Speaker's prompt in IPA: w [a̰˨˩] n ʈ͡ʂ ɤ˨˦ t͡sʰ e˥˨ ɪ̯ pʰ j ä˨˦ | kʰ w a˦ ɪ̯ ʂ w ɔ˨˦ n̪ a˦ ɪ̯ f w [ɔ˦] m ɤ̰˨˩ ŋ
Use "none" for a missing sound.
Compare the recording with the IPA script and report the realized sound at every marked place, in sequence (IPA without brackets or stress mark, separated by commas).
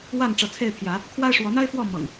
a˥˨, ɔ˥˨